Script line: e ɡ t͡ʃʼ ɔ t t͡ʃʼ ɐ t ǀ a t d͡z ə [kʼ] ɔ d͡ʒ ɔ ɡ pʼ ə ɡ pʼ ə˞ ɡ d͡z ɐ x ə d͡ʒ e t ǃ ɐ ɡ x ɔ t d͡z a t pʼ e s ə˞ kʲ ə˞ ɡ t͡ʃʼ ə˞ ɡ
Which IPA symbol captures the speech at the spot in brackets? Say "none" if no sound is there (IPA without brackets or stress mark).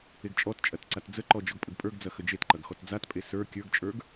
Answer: ǃ